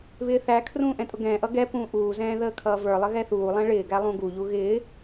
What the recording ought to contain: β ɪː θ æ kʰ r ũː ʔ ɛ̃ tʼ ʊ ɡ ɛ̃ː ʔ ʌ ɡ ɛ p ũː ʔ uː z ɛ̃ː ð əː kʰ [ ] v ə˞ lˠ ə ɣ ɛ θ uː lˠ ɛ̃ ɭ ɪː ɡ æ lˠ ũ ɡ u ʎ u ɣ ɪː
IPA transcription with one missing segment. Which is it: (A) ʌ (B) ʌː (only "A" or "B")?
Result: B